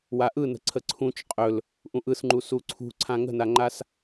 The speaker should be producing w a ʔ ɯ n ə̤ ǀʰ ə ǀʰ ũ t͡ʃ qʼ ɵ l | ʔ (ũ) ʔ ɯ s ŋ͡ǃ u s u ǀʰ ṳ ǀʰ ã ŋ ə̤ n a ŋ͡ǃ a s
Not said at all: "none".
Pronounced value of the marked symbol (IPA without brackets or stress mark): ũ